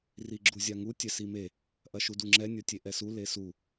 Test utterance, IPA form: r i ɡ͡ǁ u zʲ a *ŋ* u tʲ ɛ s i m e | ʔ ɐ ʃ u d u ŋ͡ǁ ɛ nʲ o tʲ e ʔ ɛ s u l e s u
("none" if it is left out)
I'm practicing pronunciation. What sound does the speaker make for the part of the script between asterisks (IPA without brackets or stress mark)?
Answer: ŋ